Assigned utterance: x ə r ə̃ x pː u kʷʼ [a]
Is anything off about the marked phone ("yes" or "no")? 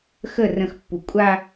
no